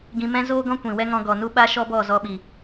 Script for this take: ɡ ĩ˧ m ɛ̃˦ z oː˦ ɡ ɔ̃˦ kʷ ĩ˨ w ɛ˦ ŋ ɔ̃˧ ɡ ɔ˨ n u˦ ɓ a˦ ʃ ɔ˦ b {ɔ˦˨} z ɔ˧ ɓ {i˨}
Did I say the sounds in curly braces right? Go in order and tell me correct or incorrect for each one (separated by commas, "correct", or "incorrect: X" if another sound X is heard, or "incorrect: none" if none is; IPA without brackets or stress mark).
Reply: correct, correct